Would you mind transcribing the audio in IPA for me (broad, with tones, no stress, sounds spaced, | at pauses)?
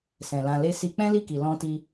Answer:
s ɛ̃˨ l ã˧ l e˦ s i˧ k͡p ɛ̃˦ l i˦˨ k i˨ l ɔ̃˧ t i˧